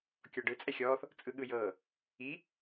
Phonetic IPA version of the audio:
kʲɔɖɯ t͡sʼɛxʲɔːθ | t͡sʼɯɠɯjɤː | i

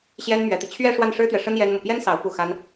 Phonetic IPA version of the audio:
ɕjɛ˥nmɥɛ˧˥t̪i˧ t͡ɕʰɥɛ˥˧ ʂwa˥˩nʂɻ̩˥t̪ɥɛ˨ʂə˥n jɛ˥nmu˨ pjɛ˥nsɑ˧˥ʊ̯ pu˥˩xa˥n

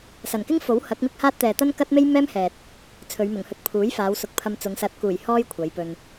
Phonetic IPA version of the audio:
sɐ˨˩nkɪ˥ŋfo˨˥w hɐ˨˥k̚mɪ˥k̚haː˥t̚t̪ɛː˨ t̪ɐ˥nkɐ˥t̚me˥j mɛː˥m hɛː˨t̚ | t͡sʰɵ˨˧ɥmʊ˨˩ŋhɵ˧t̚ pʰuː˨˥jfaː˨˧wsʊ˧k̚ pʰɐ˧mt͡sʊ˨˧ŋ sɐ˨˥t̚kuː˨˩j hɔː˥jkʷʰɐ˨˧jpɵ˧n

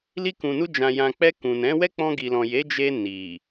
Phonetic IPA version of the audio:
li˧kũ˨nu˧ d͡ʒã˨jã˨k͡pɛ˧ kũ˨nɛ̃˨˦ wɛ˦k͡pɔ̃˧ɡi˨lɔ̃˨ je˨˦d͡ʒe˧ ni˨

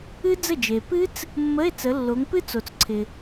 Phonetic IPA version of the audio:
ɨ˦˥d͡zə˥˩d͡ʒe˨ pɨ˦˥t͡s | mːə˧˥˧e̯t͡sə˨˦ lːo˨˦ŋpɨ˦˥t͡so˨t͡sǀʰɪ˨

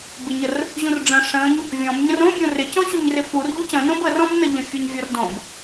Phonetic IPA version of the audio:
bɪɲər | ʑũrɖ͡ʐə̃ ʂə̃ɲ | vʲɔ̃b ɲə̃rõbʲõ rɪcɔ̃ ɕuɲrɪfur ʎucə̃nõb ərɔ̃bnəʎə̃ fʲɔɲvʲɔrdõb

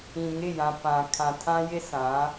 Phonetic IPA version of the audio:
ĩ˨ŋɪ˦˨jã˨ pã˨kʰã˨ tʰã˦jɪ˦sã˨˦

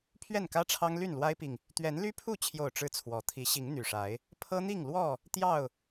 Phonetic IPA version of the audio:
pʰɥɛ˥˨nkä˦ʈ͡ʂʰɑ˦ŋ ly˥˨nlwa˦ɪ̯pi˨ŋ | t̪ɥɛ˨˦nly˦pʰu˥˨t͡ɕʰjo˨˩ʊ̯ ʈ͡ʂɻ̩˥˨t͡sʰwɔ˨˦ t̪ʰi˨˦ ɕi˨˦ŋ n̪y˨˩ʂa˨˦ɪ̯ | pʰɤ˦n̪i˥˨ŋlwɔ˥˨ | t̪jɑ˥˨ʊ̯

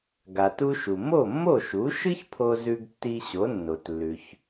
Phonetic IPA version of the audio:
ɡa˩tu˧ʃu˩ mo˥˩mːo˥˩ʃu˩˥ ʃɨ˥çpʰo˧ zʉ˧ɡtːi˧ ɕo˩˥nːo˩tlːʉ˩ç

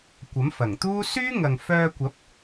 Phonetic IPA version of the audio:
kʷɐ˨˥mfɐ˨˩ŋt̪uː˥ syː˥ŋɐ˨ŋfœː˧kʷɐ˨˥p̚

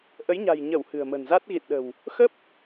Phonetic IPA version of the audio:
ʔə˨˦jɲa̤˨˩j ɲə˧˩w hɨ̤˨˩ə̯mə̤˨˩nza˦˥t̚ ɣḭ˧˨nɗə̤˨˩w | xə˦˥p̚

